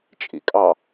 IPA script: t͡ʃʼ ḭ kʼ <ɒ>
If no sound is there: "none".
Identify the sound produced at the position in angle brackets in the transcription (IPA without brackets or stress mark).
ɑ